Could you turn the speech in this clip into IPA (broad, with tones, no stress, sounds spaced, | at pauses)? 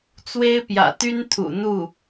t͡s w e˥ ɪ̯ p j ä̰˨˩ t̪ y˥ n t̪ʰ ṵ˨˩ n̪ u˥˩